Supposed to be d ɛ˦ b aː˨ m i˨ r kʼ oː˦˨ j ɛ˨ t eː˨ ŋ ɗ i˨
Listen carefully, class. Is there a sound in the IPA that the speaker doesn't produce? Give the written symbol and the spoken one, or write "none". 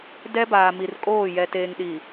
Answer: none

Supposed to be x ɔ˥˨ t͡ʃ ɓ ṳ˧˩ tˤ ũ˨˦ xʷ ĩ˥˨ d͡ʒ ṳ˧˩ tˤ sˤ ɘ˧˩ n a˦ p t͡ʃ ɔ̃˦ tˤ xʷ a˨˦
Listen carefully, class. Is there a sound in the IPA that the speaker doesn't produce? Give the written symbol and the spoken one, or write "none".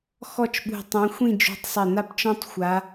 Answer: none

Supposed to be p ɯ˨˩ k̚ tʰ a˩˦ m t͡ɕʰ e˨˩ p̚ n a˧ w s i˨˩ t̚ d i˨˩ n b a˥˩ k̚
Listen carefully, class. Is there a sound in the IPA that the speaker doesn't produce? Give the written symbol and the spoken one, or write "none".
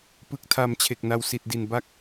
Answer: p̚ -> k̚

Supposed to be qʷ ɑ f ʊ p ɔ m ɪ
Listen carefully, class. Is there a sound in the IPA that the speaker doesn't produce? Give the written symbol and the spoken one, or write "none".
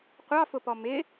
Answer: none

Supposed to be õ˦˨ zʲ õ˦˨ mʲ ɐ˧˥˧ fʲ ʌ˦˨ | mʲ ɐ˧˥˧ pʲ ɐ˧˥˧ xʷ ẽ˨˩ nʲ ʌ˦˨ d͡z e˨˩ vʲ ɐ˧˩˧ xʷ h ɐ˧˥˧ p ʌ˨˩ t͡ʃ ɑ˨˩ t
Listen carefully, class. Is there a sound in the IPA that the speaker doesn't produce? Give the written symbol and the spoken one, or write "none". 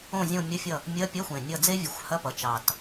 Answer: e˨˩ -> e˥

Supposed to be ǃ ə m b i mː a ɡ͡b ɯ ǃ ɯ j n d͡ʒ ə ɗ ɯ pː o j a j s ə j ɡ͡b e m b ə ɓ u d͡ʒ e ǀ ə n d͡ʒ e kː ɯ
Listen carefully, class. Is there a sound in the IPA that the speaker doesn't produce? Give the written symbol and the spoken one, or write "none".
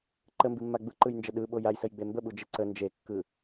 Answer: pː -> ɓ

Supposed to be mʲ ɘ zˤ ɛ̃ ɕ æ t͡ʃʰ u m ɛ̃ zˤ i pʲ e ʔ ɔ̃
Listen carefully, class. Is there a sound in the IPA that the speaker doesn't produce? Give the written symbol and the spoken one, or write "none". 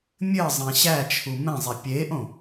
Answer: ɔ̃ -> õ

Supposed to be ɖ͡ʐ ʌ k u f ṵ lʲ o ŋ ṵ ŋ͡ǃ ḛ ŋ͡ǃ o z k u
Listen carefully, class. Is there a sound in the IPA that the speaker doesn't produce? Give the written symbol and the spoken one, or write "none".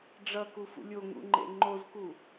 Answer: none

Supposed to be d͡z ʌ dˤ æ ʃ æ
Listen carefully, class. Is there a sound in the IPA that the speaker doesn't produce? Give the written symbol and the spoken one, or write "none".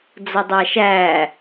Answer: none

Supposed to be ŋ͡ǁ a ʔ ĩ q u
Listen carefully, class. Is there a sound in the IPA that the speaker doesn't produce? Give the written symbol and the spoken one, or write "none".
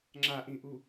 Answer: q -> ʔ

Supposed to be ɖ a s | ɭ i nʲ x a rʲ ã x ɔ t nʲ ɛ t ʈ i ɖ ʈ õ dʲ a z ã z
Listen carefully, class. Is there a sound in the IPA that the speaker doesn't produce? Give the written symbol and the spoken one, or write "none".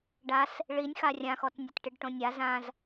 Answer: dʲ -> nʲ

